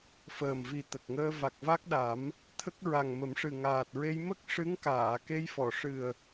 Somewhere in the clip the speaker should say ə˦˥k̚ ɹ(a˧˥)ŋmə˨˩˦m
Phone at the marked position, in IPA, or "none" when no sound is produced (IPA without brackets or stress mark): a˨˩